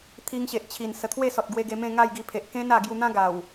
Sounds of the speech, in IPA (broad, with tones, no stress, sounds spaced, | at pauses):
t̪ʰ i˧ ŋ ɕ e˨ ʔ t͡ɕʰ i˨˩ n s ə˨˩ t̪ʰ w e˥˧ s ɔ˨ t̚ ɡ w e˧ ɡ e˧ m ẽ˥˧ ŋ a˥˧ j ɡ i˧ pʰ e˨ ʔ k ẽ˦ n a˧ ɡ j u˧ n̪ ã˦ ɡ a˨˩ w